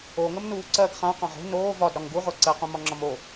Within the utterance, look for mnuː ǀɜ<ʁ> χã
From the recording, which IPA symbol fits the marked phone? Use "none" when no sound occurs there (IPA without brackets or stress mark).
ɡ